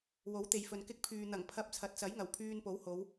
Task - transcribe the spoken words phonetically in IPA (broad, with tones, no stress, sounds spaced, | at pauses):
w o˨˥ w t̪ e˨ j f ɵ˨ n k ɪ˧ k̚ pʰ yː˨ n̪ ɐ˨˩ ŋ pʰ ɐ˧ p̚ t͡sʰ ɐ˨ t̚ t͡s ɐ˨˥ j ŋ ɐ˨˩ w pʰ yː˧ n p o˨˥ w h o˨˧ w